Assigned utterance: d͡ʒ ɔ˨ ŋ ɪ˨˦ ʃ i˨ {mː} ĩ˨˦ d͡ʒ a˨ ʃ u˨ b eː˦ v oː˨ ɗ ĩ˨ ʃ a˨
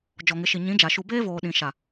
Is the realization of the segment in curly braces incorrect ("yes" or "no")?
yes